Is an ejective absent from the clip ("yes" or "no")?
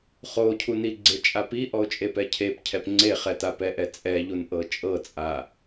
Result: no